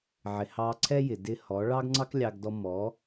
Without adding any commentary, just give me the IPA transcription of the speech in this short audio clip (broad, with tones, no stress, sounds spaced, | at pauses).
ʕ ɪ˨ h ɑ˧ ǀʰ ɛ˦ j ɪ˨ d ɪ˧ h ɔ˨˦ ɭ ɑ˦ ɡ ŋ͡ǀ ɑ˦ k lʲ ɑ˧ ɡ d ɔ˧ m ɔ˨˦